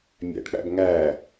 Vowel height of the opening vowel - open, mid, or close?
open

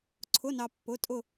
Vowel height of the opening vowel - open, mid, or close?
close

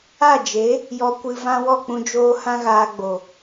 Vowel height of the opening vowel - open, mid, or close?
open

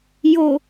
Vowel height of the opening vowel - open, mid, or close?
mid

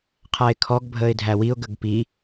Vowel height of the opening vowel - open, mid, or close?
open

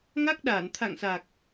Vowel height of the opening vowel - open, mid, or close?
open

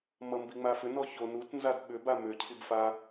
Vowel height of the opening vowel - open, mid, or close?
mid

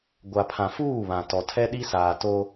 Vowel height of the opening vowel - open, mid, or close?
open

